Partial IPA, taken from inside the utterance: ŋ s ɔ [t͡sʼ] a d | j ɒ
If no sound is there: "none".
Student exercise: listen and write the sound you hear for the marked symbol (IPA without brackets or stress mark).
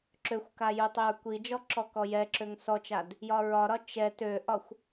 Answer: t͡ʃ